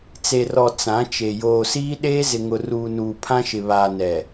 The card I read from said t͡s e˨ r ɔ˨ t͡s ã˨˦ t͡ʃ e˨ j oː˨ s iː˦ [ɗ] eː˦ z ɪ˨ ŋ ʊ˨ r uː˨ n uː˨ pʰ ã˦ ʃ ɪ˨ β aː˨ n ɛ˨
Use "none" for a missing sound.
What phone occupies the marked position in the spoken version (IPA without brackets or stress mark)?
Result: ɗ